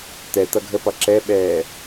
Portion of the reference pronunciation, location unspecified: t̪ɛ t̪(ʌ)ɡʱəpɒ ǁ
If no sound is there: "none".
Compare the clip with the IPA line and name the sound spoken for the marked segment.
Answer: ʌ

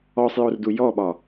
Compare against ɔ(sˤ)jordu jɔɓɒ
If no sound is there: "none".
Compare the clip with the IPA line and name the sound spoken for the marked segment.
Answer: sˤ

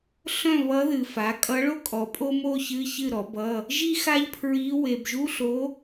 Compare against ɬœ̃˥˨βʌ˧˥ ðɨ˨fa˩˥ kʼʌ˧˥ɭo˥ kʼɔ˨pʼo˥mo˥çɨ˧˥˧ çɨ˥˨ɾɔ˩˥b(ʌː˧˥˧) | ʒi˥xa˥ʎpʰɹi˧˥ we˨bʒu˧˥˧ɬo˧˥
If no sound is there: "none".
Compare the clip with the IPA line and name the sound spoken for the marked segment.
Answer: ʌ˧˥˧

